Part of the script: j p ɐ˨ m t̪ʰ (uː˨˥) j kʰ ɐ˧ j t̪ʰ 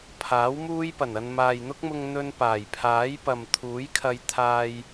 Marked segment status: correct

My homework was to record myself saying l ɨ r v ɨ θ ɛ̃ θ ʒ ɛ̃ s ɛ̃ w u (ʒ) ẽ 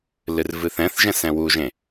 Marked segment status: correct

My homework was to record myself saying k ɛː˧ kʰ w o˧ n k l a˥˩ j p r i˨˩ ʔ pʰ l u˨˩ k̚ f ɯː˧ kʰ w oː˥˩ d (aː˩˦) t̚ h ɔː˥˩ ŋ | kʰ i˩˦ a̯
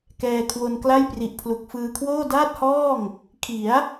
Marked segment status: incorrect: aː˥˩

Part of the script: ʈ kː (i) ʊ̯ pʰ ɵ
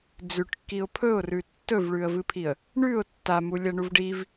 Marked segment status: correct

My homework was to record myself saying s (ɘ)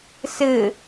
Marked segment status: correct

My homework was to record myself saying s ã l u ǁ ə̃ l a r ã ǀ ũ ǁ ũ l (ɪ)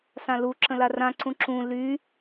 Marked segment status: incorrect: y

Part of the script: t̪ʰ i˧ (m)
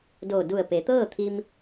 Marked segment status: correct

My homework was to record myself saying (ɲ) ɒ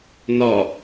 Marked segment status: incorrect: n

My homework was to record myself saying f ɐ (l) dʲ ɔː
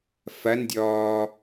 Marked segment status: incorrect: n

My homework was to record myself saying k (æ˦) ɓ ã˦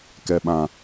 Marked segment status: incorrect: ɛ˦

